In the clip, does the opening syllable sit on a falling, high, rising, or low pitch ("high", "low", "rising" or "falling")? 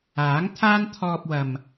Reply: rising